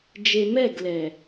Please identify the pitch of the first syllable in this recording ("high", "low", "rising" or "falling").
low